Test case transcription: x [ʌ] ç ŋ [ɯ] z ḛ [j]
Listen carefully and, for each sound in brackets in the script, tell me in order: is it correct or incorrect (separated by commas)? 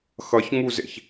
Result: correct, incorrect, incorrect